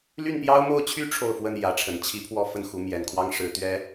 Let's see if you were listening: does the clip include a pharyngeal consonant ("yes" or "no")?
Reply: no